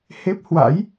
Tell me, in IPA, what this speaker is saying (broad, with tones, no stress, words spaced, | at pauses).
he˦˥p̚hwa̰˧˥j